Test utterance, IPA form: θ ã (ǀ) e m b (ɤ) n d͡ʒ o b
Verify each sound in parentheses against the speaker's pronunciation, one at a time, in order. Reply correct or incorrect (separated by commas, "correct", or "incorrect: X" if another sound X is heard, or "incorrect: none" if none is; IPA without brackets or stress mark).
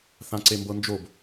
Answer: correct, correct